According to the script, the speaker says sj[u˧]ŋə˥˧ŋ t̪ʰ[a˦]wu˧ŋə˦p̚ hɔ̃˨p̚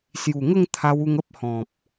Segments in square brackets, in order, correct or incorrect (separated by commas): incorrect, incorrect